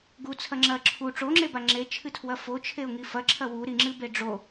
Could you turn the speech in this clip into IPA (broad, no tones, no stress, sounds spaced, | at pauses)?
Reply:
ɡ u t͡sʰ ɐ ŋ͡ǁ ɐ ǁʰ u ʈ͡ʂ o ŋ͡ǁ e b a ŋ͡ǁ e t͡ʃʰ ɨ tʰ w ɐ f o t͡ʃʰ e ʊ̯ ŋ i f ɐ ǁʰ ɐ w u ɾ i ŋ͡ǁ ɨ b e ɖ͡ʐ o